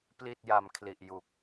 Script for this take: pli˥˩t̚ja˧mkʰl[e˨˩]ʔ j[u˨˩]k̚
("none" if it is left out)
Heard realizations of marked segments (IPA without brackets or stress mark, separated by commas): i˨˩, u˨˩